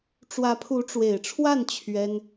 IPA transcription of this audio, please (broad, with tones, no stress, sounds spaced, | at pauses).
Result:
ʈ͡ʂ w ä˧˥ pʰ u˧˥ ʈ͡ʂ w e˨˩ ɪ̯ ʈ͡ʂʰ w a˥˩ n t͡ɕʰ ɥ ɛ˥ n